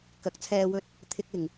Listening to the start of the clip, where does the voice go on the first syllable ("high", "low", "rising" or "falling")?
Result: rising